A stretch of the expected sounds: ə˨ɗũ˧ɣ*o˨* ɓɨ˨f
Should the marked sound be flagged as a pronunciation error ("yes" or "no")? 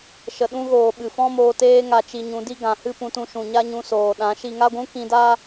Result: yes